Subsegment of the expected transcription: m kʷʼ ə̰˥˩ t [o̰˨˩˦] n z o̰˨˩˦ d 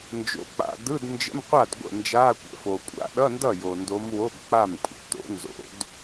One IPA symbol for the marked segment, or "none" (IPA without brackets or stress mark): o̰˨˩˦